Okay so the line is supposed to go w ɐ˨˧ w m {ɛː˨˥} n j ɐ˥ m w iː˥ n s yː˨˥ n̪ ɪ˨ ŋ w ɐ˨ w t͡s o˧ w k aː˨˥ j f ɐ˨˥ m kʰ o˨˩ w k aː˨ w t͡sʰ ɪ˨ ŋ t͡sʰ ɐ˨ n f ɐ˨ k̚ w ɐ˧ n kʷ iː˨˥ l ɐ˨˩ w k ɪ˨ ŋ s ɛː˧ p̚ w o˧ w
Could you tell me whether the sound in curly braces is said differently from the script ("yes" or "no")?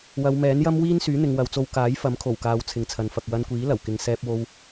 no